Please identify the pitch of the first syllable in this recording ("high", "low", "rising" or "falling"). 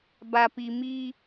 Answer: low